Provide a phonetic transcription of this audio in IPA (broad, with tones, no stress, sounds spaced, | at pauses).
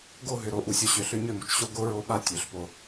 ɡ o˦˨ ɦ ʏ˨ ɾ o˨ ʔ u˨ sʲ o˨ ɕ ø˨ ɬ ʏ˦ ɲ ø˦˨ m u˨ t͡ʃ ɕ o˦ ɡ o˦ ɹ o˦ ɓ a˦ tʲ ø˨ ɬ p o˦